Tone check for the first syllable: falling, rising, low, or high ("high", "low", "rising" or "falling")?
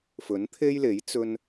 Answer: rising